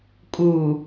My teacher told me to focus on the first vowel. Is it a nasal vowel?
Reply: no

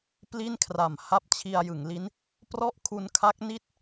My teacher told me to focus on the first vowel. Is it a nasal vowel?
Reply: no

